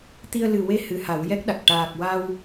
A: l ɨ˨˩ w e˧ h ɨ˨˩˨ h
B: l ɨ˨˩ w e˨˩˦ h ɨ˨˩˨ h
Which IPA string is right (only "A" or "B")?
A